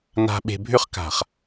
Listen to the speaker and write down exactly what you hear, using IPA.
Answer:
na̤˨ ɓe̤˨bʱʏ˦χka̤˨χ

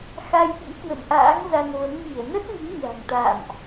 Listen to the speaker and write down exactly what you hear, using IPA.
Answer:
xa˧jɓḭ˧˥kwə̰˧˨n ʔa̰ː˧˥ŋza˧nvə˨˦m ɲi˧˩ə̯ nə˦˥t̚ŋi˨˦ɲa̤˨˩ŋt̪a̰ː˧˨mʔ

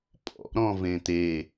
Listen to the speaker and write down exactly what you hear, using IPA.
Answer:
pʼɔ̰ɾɔ̃ vẽt̪e

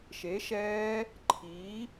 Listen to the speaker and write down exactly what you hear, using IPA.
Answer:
ʃe˩˥ʃɛː˦˥ | ǃʰiː˩˥

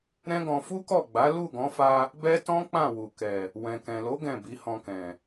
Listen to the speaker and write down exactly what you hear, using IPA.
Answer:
ɾɛ̃˦ɡɔ̃˧ fu˦kɔ˦˨ɡ͡ba˨˦ lu˦˨ɡɔ̃˨˦fa˧ | bɛ˦tɔ̃˦k͡pã˦˨ wu˨kɛ˨ | wɛ̃˨kɛ̃˨lo˨˦ ɡɛ̃˦˨bi˨˦hɔ̃˧kɛ̃˨

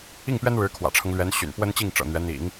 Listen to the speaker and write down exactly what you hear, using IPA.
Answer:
i˥˩ŋpɥɛ˥nɻɻ̩˧˥ kʰwä̰˨˩ʈ͡ʂʰɤ˦ŋ lɥɛ˧˥nɕy̰˨˩n pwə˥nt͡ɕi˥˩ŋʈ͡ʂɤ̰˨˩ n̪ɥɛ˧˥n̪ḭ˨˩˦ŋ

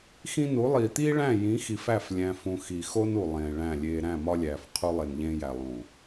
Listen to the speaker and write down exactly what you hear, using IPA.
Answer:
xĩ˦nu˨˦ lˠiː˨t̪iː˦ ɭæ̃˦˨jĩ˨˦xi˨fæ˦˨f lʲæ̃˦fũ˦ xi˨xo˦nu˨ lˠẽː˨ɭæ̃˦˨lʲeː˦ ɾæ̃˦˨mɒ˦lʲæː˨f qʰu˦lˠe˨nʎẽː˦jæ˨ lˠũ˨

